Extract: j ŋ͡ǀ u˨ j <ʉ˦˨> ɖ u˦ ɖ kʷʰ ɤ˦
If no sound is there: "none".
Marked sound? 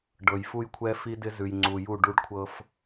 u˦˨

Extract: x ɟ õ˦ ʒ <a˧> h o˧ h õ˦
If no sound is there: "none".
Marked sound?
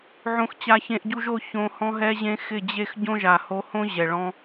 a˨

